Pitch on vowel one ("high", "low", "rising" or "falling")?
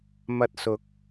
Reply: high